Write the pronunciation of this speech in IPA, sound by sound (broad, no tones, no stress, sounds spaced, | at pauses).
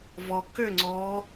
v ɔ k ʏ ŋ͡ǀ ɔ